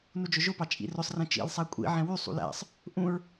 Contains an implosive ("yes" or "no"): no